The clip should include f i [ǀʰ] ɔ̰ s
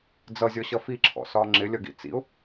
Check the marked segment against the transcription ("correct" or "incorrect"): incorrect